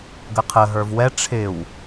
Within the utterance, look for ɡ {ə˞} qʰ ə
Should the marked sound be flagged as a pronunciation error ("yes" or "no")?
yes